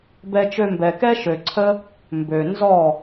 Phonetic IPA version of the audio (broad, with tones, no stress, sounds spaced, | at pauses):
b ɛ˧ t͡ʃ ø˧ m b ɛ˨ k ɛ˦ ʃ ø˨ ǀʰ ə˦ | m b ø˨ n z ɔ˦˨